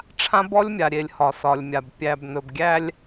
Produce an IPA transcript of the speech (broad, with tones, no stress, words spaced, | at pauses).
ʈ͡ʂʰã˦bɔ˦lʲmʲa˨ɾʲe˨lʲ hɒ˨sɒ˨lʲmʲa˨b pʲæ˨bnɵ˨bɡʲæ˦lʲ